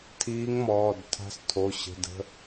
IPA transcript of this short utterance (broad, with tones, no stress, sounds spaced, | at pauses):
tʰ iː˧˥ ŋ m ɔː˩˧˩ d tʰ a̤˧˥ s tʰ o˩˧˩ ɕ ə̤˩˧˩ d ə̤˩˧˩